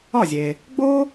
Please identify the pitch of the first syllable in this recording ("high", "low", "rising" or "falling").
falling